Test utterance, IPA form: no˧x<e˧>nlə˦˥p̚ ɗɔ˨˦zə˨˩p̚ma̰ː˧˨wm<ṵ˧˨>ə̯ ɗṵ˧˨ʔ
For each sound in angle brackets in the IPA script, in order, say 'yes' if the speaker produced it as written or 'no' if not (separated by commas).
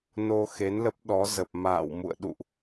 no, yes